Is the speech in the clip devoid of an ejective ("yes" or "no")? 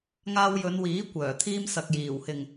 yes